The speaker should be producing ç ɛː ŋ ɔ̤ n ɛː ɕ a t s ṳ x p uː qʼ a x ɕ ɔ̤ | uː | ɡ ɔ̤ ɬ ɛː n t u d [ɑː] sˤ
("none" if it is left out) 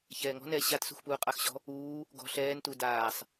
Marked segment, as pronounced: aː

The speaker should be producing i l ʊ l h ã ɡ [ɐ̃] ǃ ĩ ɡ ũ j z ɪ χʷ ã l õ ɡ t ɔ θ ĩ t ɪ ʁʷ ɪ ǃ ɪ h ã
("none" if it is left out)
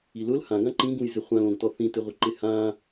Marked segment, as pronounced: ã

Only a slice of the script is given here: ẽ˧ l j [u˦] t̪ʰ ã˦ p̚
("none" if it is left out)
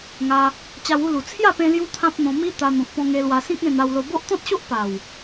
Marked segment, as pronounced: u˦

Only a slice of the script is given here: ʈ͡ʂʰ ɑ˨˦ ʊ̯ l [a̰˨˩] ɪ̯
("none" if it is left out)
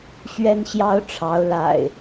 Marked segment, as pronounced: a̰˨˩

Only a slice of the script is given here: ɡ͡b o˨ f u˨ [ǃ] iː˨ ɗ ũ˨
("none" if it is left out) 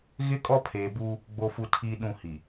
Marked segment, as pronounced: tʰ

